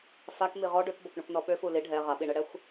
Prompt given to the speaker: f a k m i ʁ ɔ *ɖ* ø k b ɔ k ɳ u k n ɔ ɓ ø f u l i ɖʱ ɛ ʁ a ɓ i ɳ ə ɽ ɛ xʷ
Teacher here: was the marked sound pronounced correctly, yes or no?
yes